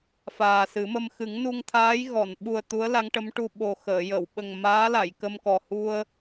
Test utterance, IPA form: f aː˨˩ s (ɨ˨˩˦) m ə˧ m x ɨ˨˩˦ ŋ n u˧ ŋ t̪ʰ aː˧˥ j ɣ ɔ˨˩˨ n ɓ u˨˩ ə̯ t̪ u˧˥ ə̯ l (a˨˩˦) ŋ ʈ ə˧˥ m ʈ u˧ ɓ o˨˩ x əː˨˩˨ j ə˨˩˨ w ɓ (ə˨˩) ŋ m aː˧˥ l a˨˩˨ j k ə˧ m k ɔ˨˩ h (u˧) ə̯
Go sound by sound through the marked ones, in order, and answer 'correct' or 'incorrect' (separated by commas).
correct, incorrect, correct, correct